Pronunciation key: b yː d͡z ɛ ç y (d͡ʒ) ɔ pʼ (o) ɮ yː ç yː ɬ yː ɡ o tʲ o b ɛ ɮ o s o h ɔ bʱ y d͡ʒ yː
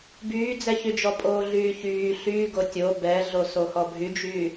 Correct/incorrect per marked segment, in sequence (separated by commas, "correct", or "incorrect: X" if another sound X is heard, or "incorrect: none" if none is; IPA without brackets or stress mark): correct, incorrect: oː